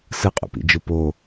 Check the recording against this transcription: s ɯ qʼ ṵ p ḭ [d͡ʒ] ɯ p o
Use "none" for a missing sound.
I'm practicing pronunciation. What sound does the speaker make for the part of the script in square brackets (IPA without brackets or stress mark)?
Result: d͡ʒ